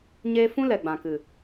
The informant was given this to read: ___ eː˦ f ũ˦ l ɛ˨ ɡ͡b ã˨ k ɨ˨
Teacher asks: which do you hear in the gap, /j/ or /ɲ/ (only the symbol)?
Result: ɲ